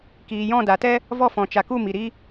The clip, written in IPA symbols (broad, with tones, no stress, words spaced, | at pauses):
kiː˨jɔ̃˦˨da˨tɛ˦ | vɔ˦˨fɔ̃˨t͡ʃa˨ku˦˨ mi˨ɾi˦